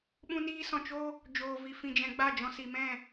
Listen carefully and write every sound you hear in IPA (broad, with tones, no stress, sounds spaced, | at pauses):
ɓ ũ˦ n iː˦ s ɔ̃˧ t͡ʃ o˦ | d͡ʒ oː˧ v i˧ f ĩ˧ d͡ʒ ɛ̃˧ ɡ͡b a˦˨ d͡ʒ ɔ̃˧ s i˨ m ɛ̃˦˨